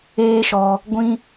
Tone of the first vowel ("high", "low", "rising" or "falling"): high